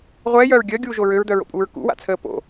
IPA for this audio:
ʁʷ ɛː j œː ɹ ɡʲ əː ɡʲ uː ʒ o ɹ ø ɹ d̪ œ ɹ o̰ pʼ uː ɹ k ṵ w a̰ t͡sʰ əː p o̰

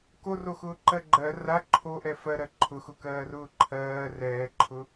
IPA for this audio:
k o r o x ʊː ǃ ɜ ɡ͡ǃ ɜ r a ǃʰ o ʔ ɛ f ɜ ɾ ɜ ǃʰ ʊ x ʊ k ɜː r ʊː ǃʰ ɜː r ɛː ǃʰ ʊ

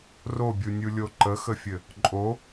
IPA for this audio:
r o bʲ u nʲ u lʲ o ǃ ə x ə fʲ ɘ | ǃʼ o

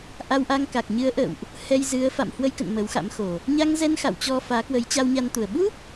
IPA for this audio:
ʔ a˧ w ʔ a˧ ŋ k a˨˩ k̚ ɲ ɨ˨˦ ə̯ ʔ ə̰ː˧˨ w ʔ | h ɛ˧ j z ɨ˨˦ ə̯ f a̰˧˨ m h w ə˧ j k ə̰˧˨ n m ə˨˦ w x a̰˧˥ m x o˨˩ | ɲ a˧ ŋ z ɛ˧ n x a̰˧˨ w t͡ɕ ɔ˧ f aː˨˦ k w ə˨˦ j t͡ɕ a˧ w ɲ a˧ n t̪ u˨˩ ə̯ ɓ u˦˥ p̚

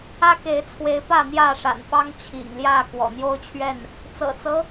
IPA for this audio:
ä˦ k e˨˦ ɪ̯ t͡sʰ w e˨˦ ɪ̯ p ä˥˨ n̪ j ä˥˨ ʂ a̰˨˩ n f ɑ˦ ŋ t͡ɕʰ ḭ˨˩ ŋ l j ä˥˨ k w ɔ̰˨˩ n̪ j o˦ ʊ̯ t͡ɕʰ ɥ ɛ˥˨ n | t͡s ɤ̰˨˩ t͡s ɤ˦

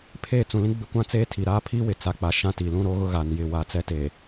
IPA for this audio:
pʰ eː˦˨ t͡s ũ˨ l ĩ˦ ɡ͡b ɪ˦ kʷ ã˦ t͡s eː˦ tʰ i˨ ɾ aː˦ pʰ iː˦ w ɪ˨ t͡s a˨ k͡p a˨ ʃ ã˦ t i˨ l ũ˦ ɾ o˦ ɣ ʊ˦ ɣ a˨ n j ɪ˦˨ w a˦ t͡s ɛ˦ t e˨

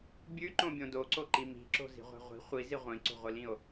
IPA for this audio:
bʲ ʉ ǃ õ bʲ õ d o ǀ o ǃ i m i̤ ǁ o̤ z i̤ ʁʷ ɛ̤ ʁʷ i̤ χʷ i z i ʁʷ ĩ ǀ o̤ ʁʷ i l ĩ o̯

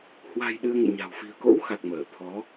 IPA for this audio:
h w a̤˨˩ j ɗ ɨ˧ ə̯ ŋ ḛ˧˨ ɲ a̤˨˩ w f i̤˨˩ ə̯ k o̰˧˥ w x a˨˩ k̚ m əː˧˩ t̪ʰ ɔ˨˦

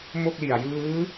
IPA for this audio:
m o˥˩ k̚ l i˨˩ a̯ j ɯː˦˥

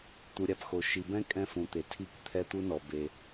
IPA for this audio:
t̪ u˨ ɾʲ a˨ p x o˨ ʃ i˨ b ɛ̃˦ kʼ ɛ̃˦ f ũ˨ t̪ e˨ tʰ i˦˨ k t̪ʰ ɛ˦ t̪ u˦ n ɔ˨ b e˦

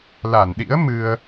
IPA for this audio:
l a˧˩ n ɗ ḭ˧˥ ə̯ m ɨ˧ ə̯

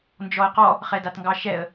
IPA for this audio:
n d͡ʒ ɔ ɪ̯ q ɔ | χ ɛ d a t ŋ ɡ ɑ ʃ ɛ ə̯

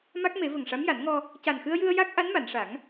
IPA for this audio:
m a˦˥ k̚ m e˨˩˦ v ə˨˩ ŋ ʂ a˧˥ m j a˨˩˦ n ŋ ɔ˧ | c a˨˩ n x ɨ˧ ə̯ j ɨ˧ ə̯ j a˦˥ k̚ ʔ a˧˥ n m a˨˩˨ n ʂ a˨˩˦ ŋ

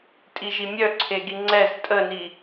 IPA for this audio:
tʼ i ʒ i mʲ œ ǀʰ e ɡ i ŋ͡ǀ ɛ z tʼ ə n i

